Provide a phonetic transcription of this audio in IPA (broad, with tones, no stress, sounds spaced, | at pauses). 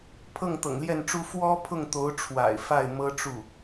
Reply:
pʰ ɤ˥˩ ŋ t̪ ɤ̰˨˩ ŋ l j ɛ˥˩ n ʈ͡ʂ u˥ f w ɔ˥ pʰ ʊ˥˩ ŋ t̪ o˧˥ ʊ̯ ʈ͡ʂʰ w a̰˨˩ ɪ̯ f a˥˩ ɪ̯ m ɤ˥ ʈ͡ʂ u˥˩